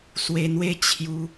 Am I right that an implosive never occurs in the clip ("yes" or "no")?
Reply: yes